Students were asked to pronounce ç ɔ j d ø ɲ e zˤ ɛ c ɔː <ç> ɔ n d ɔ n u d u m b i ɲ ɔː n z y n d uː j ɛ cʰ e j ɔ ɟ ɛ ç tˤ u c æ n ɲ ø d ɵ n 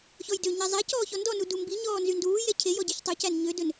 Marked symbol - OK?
yes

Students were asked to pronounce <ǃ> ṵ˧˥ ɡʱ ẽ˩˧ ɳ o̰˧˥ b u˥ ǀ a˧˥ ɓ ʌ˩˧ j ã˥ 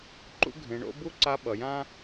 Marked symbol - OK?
yes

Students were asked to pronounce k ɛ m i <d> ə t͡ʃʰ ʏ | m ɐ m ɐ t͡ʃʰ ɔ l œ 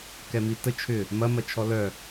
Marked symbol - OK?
no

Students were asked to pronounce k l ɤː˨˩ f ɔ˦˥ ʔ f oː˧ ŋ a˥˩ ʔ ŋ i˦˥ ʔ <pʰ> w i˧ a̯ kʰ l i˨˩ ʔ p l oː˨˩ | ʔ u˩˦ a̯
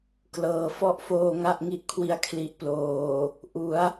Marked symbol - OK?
no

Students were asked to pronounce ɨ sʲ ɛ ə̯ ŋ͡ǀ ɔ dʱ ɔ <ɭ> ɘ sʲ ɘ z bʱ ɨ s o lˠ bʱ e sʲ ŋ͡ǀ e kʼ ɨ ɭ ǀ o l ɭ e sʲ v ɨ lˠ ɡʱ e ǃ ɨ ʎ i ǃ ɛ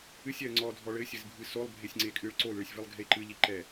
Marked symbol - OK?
yes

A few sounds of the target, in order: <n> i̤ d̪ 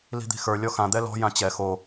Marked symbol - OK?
no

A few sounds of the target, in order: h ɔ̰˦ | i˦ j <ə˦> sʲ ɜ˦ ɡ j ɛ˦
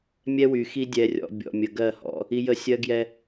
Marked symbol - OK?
yes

